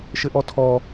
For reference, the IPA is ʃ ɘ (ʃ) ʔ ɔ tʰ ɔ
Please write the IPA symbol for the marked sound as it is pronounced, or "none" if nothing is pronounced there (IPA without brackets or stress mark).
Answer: none